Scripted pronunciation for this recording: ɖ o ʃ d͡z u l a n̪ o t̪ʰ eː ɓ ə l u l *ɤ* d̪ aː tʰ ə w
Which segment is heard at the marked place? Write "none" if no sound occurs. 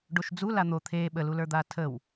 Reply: ə˞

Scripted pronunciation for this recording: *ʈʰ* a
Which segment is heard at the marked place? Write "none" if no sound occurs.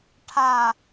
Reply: ʈʰ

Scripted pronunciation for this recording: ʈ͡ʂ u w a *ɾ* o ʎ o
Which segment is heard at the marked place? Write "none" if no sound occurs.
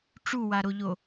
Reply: ɾ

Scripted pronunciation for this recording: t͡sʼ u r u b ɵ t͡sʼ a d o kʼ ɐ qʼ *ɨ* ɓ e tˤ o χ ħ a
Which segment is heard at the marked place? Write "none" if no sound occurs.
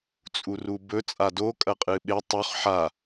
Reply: ɨ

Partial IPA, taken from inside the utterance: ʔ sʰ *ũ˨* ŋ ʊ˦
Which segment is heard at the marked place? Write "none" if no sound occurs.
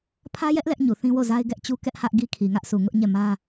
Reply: u˨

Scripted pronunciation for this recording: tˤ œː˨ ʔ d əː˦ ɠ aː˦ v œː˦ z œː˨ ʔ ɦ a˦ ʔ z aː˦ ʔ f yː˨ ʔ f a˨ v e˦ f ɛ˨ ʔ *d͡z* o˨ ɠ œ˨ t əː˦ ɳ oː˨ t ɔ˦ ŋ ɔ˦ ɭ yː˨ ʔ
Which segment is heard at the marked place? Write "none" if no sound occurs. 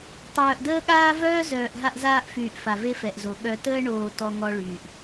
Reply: z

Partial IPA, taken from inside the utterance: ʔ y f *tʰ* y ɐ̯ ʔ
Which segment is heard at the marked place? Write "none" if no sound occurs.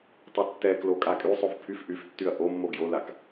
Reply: tː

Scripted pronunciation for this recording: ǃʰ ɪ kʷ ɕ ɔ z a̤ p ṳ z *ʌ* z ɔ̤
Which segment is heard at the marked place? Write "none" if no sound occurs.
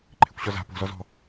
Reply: ɔ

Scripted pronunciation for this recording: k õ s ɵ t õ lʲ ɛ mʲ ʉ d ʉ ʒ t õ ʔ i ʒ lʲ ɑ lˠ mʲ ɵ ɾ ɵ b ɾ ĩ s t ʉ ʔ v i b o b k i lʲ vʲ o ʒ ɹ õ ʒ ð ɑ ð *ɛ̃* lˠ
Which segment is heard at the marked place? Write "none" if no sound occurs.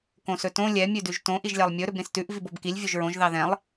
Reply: ɛ̃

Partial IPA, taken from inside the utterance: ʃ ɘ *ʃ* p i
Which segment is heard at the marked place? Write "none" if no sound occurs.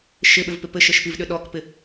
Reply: ʃ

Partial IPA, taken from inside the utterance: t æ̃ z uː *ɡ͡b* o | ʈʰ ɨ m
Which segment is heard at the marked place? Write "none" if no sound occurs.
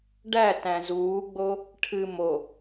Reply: ɡ͡b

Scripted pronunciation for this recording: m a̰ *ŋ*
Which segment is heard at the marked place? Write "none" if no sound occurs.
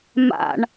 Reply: ɳ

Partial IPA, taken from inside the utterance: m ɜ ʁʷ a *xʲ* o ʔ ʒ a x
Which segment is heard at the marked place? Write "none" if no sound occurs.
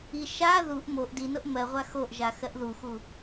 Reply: x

